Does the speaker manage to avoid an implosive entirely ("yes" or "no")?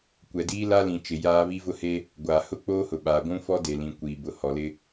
no